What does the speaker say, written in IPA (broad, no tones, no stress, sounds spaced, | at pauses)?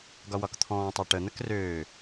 ɡ ɒ w ɒ k t̪ʰ ɔ̃ː tˤ ɑ ʈ ə n̪ ə k r øː